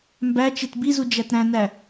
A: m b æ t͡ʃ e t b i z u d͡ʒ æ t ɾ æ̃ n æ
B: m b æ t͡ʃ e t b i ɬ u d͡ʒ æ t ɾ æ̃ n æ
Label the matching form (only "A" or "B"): A